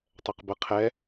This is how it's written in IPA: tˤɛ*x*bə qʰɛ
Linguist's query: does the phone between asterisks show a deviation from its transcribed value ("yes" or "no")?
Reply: yes